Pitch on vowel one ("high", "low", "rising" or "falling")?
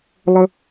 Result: high